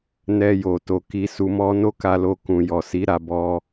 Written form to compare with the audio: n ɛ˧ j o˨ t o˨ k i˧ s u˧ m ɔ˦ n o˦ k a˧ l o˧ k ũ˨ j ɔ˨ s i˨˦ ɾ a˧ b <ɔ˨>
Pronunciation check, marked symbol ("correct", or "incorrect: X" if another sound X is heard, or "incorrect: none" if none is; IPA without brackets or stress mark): incorrect: ɔ˧